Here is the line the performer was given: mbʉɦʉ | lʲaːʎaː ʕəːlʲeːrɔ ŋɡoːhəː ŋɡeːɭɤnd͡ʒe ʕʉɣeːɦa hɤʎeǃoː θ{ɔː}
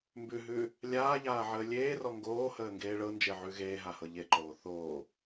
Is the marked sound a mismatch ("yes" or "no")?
yes